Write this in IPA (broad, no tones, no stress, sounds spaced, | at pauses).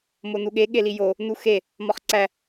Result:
m o n u ɠ e ɠ e l i j o | n u x e | m ɒ χ ǀ æ